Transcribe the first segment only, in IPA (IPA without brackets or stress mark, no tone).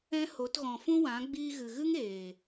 ɛ̃